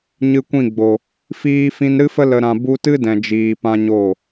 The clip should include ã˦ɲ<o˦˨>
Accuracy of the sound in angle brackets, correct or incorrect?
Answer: correct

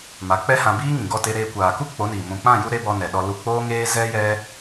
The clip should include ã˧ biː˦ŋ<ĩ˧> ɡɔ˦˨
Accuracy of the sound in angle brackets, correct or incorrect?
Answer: incorrect: ĩ˨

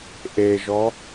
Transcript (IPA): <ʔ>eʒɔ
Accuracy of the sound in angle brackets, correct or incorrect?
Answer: correct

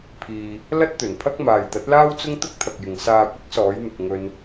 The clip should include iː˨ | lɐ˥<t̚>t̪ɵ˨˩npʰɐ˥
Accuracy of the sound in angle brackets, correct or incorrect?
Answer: correct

